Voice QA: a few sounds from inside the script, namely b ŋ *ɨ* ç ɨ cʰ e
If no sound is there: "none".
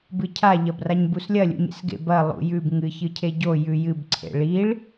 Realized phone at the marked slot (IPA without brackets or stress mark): ɨ